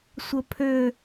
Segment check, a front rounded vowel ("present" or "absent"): present